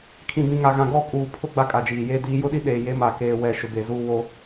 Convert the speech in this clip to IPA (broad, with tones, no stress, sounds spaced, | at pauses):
kʰ ĩ˨ b ĩ˨ ŋ a˨ ɣ ã˨ ɡ ɔ˦˨ kʼ uː˨ pʰ ʊ˦ ɡ͡b a˦ kʼ a˨ d͡ʒ iː˨ j eː˦ d iː˨˦ j ʊ˦ ɗ i˦ ɗ eː˨ j e˨˦ m a˨ k eː˨ w ɛ˨ ʃ ʊ˨ b e˨ z uː˦ w o˦